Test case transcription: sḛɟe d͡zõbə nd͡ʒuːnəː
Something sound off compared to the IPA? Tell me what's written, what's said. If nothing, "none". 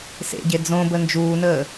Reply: none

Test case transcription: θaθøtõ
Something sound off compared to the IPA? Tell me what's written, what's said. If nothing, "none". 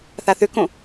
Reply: t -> k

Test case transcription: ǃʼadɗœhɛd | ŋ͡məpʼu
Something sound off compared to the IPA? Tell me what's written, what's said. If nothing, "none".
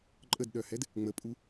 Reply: a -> ə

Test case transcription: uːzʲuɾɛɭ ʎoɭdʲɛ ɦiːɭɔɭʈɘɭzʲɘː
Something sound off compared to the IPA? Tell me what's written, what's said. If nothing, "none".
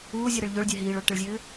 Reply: none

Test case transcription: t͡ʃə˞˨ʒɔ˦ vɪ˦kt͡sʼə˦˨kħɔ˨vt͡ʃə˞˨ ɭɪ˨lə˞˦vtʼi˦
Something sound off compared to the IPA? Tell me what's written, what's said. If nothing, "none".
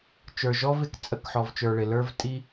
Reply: none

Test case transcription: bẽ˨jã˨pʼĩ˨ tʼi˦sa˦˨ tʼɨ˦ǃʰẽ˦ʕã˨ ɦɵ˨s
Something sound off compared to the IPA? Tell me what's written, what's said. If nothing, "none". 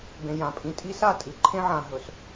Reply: ɨ˦ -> ɨ˨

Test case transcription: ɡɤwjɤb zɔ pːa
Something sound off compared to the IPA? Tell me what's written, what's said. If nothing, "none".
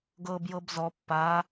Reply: w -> b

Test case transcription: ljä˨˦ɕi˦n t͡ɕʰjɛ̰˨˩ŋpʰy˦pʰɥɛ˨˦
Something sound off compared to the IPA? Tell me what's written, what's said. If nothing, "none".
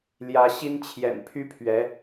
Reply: ŋ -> n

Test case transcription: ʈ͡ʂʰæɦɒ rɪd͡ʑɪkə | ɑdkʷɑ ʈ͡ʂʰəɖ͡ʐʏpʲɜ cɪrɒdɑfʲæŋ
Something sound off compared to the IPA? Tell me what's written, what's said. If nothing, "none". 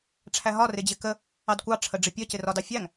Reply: ʏ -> ɪ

